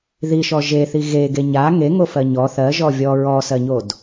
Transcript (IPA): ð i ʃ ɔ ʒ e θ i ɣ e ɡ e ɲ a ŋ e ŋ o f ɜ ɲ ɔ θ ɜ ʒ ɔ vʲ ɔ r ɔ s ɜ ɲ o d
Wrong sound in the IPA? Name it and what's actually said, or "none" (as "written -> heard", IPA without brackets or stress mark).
r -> ɹ